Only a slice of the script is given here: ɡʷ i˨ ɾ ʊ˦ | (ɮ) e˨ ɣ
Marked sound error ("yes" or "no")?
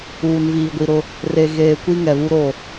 yes